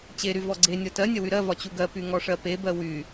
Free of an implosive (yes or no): yes